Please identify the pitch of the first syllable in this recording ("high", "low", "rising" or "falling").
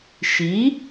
rising